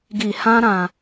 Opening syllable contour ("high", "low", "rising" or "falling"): low